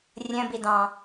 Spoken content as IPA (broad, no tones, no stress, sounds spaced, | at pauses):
rʲ ə̃ b i d ɑ̃